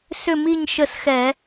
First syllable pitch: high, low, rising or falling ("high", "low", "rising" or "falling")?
falling